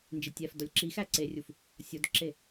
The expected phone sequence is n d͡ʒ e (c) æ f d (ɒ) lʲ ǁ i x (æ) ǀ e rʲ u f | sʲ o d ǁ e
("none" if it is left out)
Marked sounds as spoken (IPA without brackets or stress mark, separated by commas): tʲ, ɒ, æ